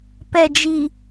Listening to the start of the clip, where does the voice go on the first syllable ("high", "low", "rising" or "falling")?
low